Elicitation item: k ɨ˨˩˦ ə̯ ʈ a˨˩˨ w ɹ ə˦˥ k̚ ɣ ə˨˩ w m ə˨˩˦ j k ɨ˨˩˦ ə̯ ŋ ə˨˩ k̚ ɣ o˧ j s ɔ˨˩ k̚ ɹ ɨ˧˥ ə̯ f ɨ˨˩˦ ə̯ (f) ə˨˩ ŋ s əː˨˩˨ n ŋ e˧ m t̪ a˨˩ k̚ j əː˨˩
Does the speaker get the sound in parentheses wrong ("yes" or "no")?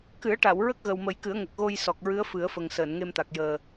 no